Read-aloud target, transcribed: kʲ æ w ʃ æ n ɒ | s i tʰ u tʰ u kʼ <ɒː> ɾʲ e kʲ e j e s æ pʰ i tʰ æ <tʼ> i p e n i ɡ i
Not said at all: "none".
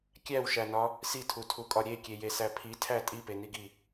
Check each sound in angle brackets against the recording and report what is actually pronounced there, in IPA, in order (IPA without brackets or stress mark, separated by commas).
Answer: ɒ, tʼ